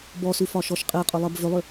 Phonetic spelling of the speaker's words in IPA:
b ɔ s ʉ f ɒ ʃ ɔ ʃ qʼ e qʼ ʏ lˠ ɜ b v ʏ lˠ ʏ

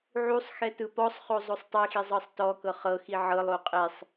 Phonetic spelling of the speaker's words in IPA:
ʕ u sˤ x ɛ t ɯ p ɔ sˤ χ o zˤ o sˤ tˤ i x i zˤ ɤ sˤ t ɔ k ɤ χ ɤ x i ʕ ɤ lˠ o qʼ e sˤ

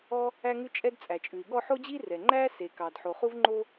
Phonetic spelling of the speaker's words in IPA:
ɔ˥ | æ˥ ŋ ʉ˥ t͡ʃʼ ɛ˥ d t͡sʼ æ˩ t͡ʃʼ ʉ˩ i̯ ɠ ɔ˥ ħ o˥ d͡ʑ i˥ r ɛ˩ ŋ͡ǃ æ˥ s e˩ k ɑ˩ d ħ o˩ χ u˥ v ŋ͡ǃ o˥

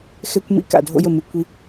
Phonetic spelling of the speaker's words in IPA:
x ɛ˦ kʷ m ḭ˦ k a̰˨ dʱ o̰˦ j ə˨ m ɨ˨ kʷ i˦

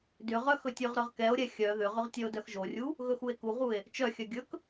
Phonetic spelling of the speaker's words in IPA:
d ʏ ʁ œ x ɵ tʲ ɵ ʁ ɾ œ ʁ k ɛ o̯ ɾʲ ɛ xʲ œ ð ʏ ʁ ʏ ʁ tʲ œ o̯ d œ x ʒ o rʲ u | ɣ ɵ x u e̯ k u ʁ u e̯ | t͡ʃ œ xʲ œ ɡʲ ɵ k

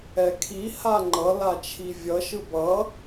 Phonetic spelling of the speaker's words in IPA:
ɛ kʰ i h a ŋ͡ǃ ʌ l a t͡ʃʰ i vʲ ʌ ʃ ɯ b ʌ

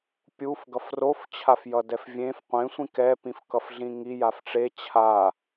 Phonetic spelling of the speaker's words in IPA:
pʲ u f ɡ ʌ f r o f t͡ɕʰ a f j ʌ d ɛ f vʲ ẽ f qʷ ẽ sʷ ĩ k ɛ p ĩ f k ʌ f ɮ ĩ ŋ i j a f ʈ͡ʂ e t͡ɕʰ a

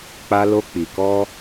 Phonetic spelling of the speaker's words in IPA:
k͡p a˧ l o˧ k͡p i˨ k ɔ˧

